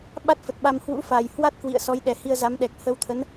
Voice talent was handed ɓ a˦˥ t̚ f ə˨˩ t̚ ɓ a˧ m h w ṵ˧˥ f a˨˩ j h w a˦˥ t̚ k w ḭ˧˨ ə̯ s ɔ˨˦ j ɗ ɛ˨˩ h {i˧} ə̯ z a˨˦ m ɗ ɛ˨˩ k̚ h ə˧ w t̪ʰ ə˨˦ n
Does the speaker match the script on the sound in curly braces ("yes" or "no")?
yes